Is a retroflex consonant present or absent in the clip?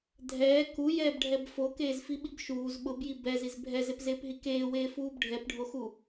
present